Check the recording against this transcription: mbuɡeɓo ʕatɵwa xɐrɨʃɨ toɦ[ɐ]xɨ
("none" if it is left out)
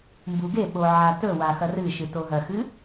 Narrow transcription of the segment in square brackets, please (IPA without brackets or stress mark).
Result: ɐ